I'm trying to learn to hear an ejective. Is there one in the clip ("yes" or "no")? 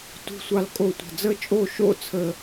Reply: yes